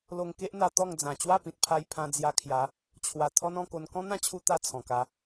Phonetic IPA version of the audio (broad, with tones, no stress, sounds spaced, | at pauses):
l o˧ ŋ k e˦ ʔ n̪ a˧ t̪ ɔ˥˧ ŋ d͡z ã˨˩ t͡ɕ w a˥˧ p ĩ˨ t̚ pʰ a˧ j pʰ ã˧ d͡z j a˧ kʰ j a˨˦ | t͡ɕʰ w a˨˩ t̪ʰ ɔ˦ n ɔ̃˧ k o˧ n k ɔ̃˦ n̪ ã˦ t͡ɕʰ u˧ t̪ a˥˧ t͡sʰ ɔ̃˨˩ k a˧